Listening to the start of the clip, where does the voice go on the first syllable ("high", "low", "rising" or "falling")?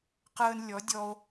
high